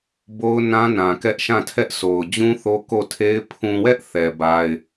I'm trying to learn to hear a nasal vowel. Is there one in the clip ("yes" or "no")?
yes